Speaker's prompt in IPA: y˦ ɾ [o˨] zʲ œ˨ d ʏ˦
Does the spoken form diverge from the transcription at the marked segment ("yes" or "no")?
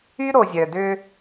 no